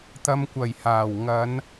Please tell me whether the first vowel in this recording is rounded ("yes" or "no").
no